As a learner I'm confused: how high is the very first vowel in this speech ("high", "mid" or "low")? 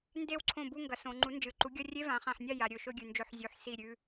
mid